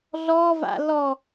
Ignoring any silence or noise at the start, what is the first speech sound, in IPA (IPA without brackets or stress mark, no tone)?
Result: ɮ